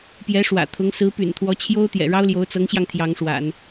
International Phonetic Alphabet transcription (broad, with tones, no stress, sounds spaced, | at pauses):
p j ɛ˧˥ ʂ w ä̰˨˩ t̪ʰ ʊ˧˥ ŋ s ɹ̩˧˥ p y̰˨˩ n t̪ʰ w ɔ˧˥ t͡ɕʰ j o˥ ʊ̯ t̪ j ɛ̰˨˩ ɻ ɑ˥ ʊ̯ l j o˧˥ ʊ̯ t͡s ɤ˧˥ ŋ ɕ j ɑ˧ ŋ t̪ʰ j ɑ˧˥ ŋ ʂ w a̰˨˩˦ n